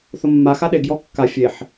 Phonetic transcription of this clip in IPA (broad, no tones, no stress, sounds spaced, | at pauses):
θ ʊ mː a x a ɗ e ɡ j ɔ kː a fʲ e ħ